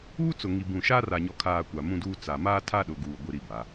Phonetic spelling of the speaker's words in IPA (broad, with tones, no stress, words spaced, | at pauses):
uː˦t͡sʊ˨ŋi˨ bũ˨ʃa˦ ra˨ɲɔ˨kʰaː˨ kʷa˨mũ˦duː˦ t͡sa˨ maː˦tʰa˦ ɗʊ˨ɡuː˨ ɡʷi˦ɾi˦ba˨˦